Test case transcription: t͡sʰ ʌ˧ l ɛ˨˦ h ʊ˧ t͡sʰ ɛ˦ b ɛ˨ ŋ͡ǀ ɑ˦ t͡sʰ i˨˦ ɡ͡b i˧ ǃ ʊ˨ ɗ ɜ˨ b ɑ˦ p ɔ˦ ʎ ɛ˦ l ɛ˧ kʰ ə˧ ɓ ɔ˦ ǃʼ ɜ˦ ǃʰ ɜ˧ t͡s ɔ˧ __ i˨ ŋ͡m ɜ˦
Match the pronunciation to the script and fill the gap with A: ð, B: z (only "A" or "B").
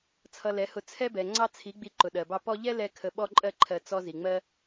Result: B